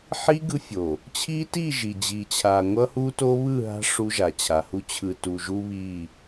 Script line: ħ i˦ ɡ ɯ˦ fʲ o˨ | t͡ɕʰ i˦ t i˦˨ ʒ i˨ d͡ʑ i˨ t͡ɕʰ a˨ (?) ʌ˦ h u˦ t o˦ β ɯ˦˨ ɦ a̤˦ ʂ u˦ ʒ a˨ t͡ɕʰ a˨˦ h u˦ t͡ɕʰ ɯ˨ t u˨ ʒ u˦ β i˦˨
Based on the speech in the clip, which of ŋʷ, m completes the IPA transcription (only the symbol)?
ŋʷ